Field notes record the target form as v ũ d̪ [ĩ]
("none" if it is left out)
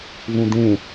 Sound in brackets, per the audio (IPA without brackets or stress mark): ẽ